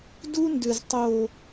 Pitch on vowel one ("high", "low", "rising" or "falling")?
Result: high